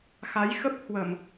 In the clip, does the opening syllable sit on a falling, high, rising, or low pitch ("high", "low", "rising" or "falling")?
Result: rising